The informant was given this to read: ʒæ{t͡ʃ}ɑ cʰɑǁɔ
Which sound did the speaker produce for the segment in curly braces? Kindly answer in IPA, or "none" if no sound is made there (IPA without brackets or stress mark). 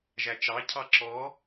t͡ʃ